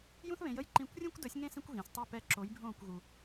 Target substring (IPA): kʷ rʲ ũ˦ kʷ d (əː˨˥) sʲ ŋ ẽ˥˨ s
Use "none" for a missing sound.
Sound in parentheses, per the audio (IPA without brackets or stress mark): əː˨˥